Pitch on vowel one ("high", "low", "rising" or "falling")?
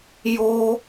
high